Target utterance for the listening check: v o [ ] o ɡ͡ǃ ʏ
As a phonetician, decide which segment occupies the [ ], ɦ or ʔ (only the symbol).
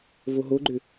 ɦ